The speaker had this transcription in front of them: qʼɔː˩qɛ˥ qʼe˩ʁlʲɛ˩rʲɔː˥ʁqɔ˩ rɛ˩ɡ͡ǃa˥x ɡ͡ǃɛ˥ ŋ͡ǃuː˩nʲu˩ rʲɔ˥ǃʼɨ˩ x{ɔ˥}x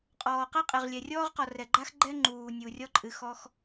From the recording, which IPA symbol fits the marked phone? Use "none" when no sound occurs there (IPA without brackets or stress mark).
ɔ˥